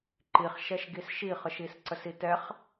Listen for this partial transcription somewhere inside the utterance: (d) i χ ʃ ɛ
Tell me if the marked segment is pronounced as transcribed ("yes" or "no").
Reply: no